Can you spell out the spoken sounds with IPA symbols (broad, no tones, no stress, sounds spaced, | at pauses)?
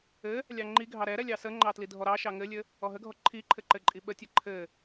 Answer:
ɘ | lʲ ɑ ŋ͡ǃ i ɡʱ ɑ ɾ ɛ ɾ ɛ lʲ ɑ s ə ŋ͡ǃ ɑ t l i dʱ ɔ ɾ ɑ ʃ ɑ ŋ ɘ lʲ ɘ | ɔ ɦ ə ɡʱ ɔ ǃʰ i ǃʰ ɘ ǃ ɘ ǃʼ i ɓ ə tʲ ə ǃʰ ɘ